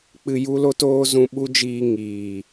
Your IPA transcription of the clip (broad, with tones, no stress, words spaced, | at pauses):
k͡pɨ˧ju˦lo˦t oː˦zũ˧ɓu˦d͡ʒiː˧ ŋiː˨